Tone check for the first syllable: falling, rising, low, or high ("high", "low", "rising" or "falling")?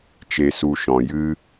low